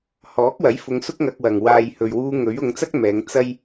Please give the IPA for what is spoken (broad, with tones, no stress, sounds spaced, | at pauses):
h ɔː˨˥ k̚ w ɐ˨˥ j f ʊ˧ ŋ s ʊ˥ k̚ ŋ ɐ˧ k̚ w ɐ˨ ŋ w aː˨ j h ɵ˨ ɥ w uː˧ ŋ ɵ˨˥ ɥ ʊ˨˧ ŋ t͡s ɐ˥ k̚ m ɛː˨˧ ŋ t͡s ɐ˥ j